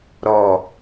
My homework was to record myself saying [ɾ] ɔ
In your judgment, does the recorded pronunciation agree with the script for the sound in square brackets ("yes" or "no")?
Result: yes